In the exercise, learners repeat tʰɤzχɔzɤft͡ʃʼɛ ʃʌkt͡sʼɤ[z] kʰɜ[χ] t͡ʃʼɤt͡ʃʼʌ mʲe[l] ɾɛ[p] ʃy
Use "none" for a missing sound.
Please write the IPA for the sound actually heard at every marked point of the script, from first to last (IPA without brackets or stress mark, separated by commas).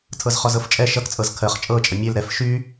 z, χ, l, f